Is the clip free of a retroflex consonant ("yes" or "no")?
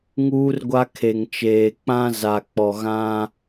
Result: yes